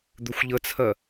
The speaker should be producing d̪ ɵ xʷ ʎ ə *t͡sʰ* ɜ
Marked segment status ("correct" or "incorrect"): correct